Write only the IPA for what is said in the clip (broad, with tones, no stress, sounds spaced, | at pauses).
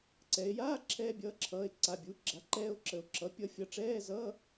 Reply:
ǀ ɛ˩˧ e̯ j aː˧˥˧ ǁʰ ɛː˧ bʲ ʌː˩˧˩ ǁʰ ʌː˩˧˩ e̯ ǀ a˩˧˩ bʲ uː˩˥ ɡ͡ǁ a˩˥ ǃ ɛː˧ o̯ ǁ ə˩˧ o̯ ǁ ʌ˩˥ pʲ ʌ˧ fʲ ʌ˩˧˩ ʈ͡ʂ ɛː˧˥˧ z ʌː˧˥˧